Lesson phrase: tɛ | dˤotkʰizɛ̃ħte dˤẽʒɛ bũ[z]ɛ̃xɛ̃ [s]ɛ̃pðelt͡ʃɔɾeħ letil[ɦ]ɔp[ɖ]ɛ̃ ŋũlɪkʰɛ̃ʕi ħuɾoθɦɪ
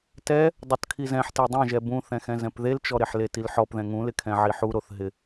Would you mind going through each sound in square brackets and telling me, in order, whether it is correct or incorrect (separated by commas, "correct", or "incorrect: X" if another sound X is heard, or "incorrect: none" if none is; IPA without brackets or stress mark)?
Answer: incorrect: θ, incorrect: z, incorrect: ħ, incorrect: ð